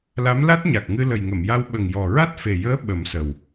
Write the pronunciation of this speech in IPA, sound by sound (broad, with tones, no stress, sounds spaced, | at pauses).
l a˧˥ m l a˦˥ t̚ ɲ a˨˩ k̚ ŋ ɨ˧ l ə˨˩ j ŋ ə˨˩˨ m j a˧ w ɓ ə˨˩ ŋ j ɔ˨˩ ɹ a˦˥ t̚ f e˨˩ j əː˧˥ ɓ ə˨˩˦ m s ə˨˩ w